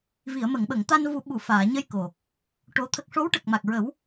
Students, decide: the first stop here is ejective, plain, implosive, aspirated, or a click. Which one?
implosive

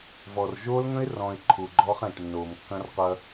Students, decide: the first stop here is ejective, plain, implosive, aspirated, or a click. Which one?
click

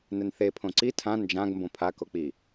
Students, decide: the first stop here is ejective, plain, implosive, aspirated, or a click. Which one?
aspirated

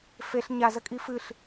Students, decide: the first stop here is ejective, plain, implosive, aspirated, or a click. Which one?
ejective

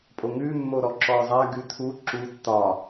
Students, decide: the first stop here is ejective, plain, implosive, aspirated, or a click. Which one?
ejective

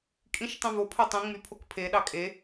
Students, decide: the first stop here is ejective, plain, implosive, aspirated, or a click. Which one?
ejective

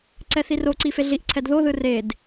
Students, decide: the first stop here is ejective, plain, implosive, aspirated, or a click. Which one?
click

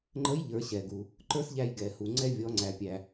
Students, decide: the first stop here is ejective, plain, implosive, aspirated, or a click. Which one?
click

